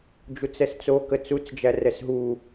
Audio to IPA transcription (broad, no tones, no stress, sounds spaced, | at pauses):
d͡ʒ u t͡s ɛ s t͡s o k ə t͡s u t͡s d͡ʒ æ r ɛ s ɦ u